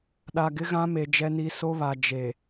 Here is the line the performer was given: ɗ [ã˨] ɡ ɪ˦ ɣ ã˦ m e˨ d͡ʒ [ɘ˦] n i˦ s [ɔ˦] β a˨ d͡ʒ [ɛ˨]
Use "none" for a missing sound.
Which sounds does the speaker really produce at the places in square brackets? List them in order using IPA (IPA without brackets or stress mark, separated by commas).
a˨, ɛ˦, o˦, e˨